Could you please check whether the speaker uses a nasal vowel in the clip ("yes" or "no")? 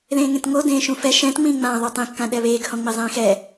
yes